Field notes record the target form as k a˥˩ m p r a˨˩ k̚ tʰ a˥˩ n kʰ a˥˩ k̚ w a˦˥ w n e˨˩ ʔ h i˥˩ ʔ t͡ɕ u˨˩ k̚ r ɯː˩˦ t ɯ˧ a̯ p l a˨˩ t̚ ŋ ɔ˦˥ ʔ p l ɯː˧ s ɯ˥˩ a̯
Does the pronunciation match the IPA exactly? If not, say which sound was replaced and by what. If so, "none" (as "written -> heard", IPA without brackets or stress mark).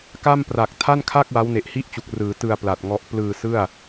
none